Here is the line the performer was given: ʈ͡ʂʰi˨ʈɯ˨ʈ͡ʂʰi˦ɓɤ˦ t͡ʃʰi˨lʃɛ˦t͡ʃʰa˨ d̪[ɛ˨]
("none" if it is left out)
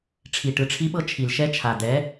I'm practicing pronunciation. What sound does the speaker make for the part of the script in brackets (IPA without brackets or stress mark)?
ɛ˨˦